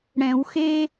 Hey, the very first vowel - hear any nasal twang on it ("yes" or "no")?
yes